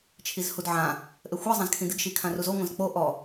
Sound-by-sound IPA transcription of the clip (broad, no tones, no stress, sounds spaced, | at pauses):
t͡ʃʰ i z h u d ʕ ã | ʔ ɘ xʷ ɛ zˤ ã z kʰ ĩ d ɨ ɡ ʃ i kʰ ã r u z o ŋʷ ɐ̃ z k͡p o ʔ ɔ